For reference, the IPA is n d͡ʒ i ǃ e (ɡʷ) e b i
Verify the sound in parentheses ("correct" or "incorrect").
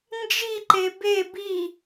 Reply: incorrect